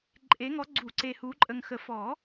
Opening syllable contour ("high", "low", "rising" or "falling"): rising